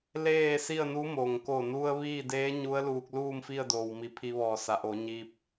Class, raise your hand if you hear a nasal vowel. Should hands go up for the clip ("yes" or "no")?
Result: no